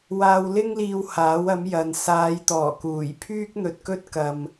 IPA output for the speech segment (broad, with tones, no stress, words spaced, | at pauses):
waː˧wlɪ˥ŋliː˧w haː˨˥wɐ˨˥mjɐ˨˧n saː˨˧jt̪ɔː˨˩kuː˨˩jpʰyː˥k̚ n̪ɵ˧t̚kɵ˥t̚kɐ˨m